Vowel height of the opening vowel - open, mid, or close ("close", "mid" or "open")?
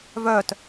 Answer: mid